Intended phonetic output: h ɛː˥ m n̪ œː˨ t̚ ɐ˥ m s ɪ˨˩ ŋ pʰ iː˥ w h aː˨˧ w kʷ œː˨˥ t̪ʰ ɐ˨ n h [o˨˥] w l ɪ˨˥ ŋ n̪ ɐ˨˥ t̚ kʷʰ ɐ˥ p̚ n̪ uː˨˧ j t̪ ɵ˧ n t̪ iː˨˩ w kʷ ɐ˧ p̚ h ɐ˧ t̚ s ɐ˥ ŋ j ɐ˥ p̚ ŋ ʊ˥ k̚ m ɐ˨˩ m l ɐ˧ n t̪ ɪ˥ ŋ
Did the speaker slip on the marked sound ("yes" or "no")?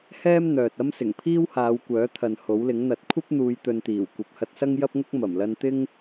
no